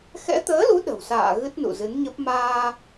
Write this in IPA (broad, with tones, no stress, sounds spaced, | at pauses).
x ɛ̰˧˥ t̪ əː˨˦ l u˨˦ ɗ ə̤˨˩ w s a̰ː˧˨ ɣ ɨ˦˥ t̚ n ṵ˧˨ z ɨ˨˦ n ɲ ə˦˥ p̚ m aː˧